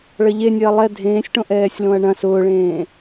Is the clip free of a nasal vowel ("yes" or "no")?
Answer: no